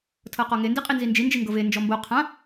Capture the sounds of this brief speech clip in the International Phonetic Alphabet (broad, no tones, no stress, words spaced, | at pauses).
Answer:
tʰɤqɔŋe ndiqʼinzind͡ʒi nd͡ʒiŋɡɤve nd͡ʒɔmbo qʰã